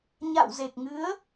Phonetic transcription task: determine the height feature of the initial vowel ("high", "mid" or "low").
low